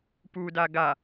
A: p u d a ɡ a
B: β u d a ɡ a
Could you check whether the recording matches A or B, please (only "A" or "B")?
A